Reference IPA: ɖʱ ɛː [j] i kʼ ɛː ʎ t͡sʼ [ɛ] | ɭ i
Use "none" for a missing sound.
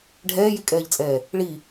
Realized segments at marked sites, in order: j, ɛː

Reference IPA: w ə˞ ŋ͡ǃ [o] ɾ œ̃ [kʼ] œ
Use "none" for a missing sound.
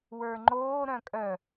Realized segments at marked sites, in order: oː, kʼ

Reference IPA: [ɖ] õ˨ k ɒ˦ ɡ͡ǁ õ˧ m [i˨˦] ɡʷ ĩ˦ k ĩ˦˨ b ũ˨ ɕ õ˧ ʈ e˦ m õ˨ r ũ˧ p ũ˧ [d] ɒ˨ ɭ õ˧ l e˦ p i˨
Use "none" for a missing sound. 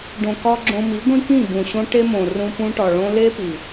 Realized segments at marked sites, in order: ɖ, i˨˦, ʈ

